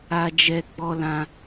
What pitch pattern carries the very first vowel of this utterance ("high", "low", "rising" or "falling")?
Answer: high